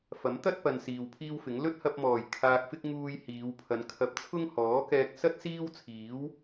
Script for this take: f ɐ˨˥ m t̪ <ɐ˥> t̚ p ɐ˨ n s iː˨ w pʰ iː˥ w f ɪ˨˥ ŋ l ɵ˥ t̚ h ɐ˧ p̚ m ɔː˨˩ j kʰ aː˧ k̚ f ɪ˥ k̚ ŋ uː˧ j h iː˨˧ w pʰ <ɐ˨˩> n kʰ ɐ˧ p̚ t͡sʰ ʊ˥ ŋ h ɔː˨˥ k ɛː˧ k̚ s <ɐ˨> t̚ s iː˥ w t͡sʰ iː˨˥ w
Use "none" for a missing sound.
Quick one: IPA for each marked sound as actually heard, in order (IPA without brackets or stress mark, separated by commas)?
ɐ˥, ɐ˨˧, ɐ˥